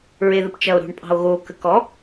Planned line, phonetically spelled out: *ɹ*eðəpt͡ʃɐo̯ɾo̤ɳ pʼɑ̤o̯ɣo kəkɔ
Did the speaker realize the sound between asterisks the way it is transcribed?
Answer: yes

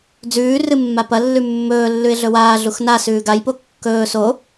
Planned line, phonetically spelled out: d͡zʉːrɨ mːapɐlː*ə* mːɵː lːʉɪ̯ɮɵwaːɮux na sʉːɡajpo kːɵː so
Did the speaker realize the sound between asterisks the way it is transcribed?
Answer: no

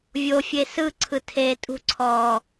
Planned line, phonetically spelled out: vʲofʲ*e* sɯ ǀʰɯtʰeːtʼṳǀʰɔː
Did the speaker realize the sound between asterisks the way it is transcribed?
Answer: yes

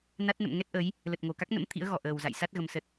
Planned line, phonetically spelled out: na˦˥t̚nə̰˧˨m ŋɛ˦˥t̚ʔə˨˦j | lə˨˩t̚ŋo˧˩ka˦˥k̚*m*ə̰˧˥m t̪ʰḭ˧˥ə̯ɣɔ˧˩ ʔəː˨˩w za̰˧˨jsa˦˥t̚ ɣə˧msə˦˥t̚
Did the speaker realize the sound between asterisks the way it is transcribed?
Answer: no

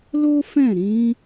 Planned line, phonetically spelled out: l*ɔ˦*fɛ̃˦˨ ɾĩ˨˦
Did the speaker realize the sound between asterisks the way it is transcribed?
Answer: no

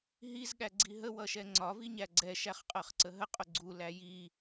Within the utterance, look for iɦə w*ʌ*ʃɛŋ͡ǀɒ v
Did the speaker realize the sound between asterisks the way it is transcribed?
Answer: yes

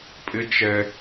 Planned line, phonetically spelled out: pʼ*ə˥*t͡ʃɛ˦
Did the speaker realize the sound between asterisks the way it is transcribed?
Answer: no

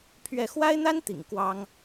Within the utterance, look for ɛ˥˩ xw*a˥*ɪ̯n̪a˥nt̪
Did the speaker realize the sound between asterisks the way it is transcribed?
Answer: yes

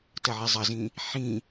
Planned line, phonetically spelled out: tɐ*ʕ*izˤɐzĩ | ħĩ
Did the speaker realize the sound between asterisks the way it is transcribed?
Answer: yes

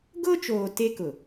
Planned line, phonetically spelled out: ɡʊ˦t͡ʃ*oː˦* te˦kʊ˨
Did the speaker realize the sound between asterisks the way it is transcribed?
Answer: no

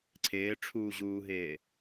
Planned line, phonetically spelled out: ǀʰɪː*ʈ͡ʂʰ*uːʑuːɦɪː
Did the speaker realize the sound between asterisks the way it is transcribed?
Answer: yes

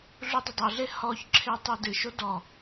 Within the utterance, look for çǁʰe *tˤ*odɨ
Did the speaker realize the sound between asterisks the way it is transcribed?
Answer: yes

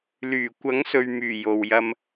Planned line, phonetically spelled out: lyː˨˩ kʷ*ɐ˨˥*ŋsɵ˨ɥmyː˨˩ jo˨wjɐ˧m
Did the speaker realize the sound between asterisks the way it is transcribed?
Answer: yes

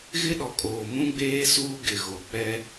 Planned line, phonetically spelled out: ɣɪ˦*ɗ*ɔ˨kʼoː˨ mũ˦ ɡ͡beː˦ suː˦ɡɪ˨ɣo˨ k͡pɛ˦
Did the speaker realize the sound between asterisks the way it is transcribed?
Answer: yes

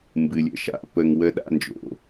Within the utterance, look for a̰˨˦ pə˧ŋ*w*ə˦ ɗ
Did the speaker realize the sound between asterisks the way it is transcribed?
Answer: yes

